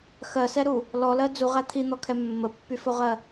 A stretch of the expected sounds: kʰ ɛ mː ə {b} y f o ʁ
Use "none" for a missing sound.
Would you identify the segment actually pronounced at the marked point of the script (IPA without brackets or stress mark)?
pː